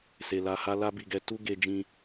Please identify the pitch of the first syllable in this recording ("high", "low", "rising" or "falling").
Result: low